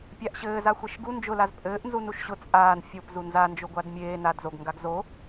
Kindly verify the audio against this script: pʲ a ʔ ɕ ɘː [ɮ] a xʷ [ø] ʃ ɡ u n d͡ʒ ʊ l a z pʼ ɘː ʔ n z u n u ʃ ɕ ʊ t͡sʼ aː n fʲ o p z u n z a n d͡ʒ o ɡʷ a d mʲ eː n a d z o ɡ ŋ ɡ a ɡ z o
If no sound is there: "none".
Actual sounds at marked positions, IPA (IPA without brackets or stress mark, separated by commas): z, e